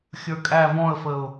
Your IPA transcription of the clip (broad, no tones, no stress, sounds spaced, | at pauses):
xʲ ə˞ kʼ æ v ɔ̃ ə̯ f ə ʊ̯